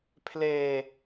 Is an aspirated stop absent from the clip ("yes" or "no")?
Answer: no